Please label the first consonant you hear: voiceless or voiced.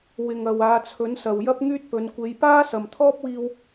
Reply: voiced